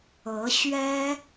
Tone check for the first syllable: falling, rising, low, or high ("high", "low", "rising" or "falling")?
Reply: rising